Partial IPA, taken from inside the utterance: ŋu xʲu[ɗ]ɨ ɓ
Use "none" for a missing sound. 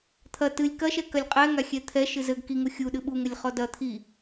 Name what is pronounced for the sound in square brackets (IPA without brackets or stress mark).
ɗ